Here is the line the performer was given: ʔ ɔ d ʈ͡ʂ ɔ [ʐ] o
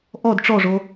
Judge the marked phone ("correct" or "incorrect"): correct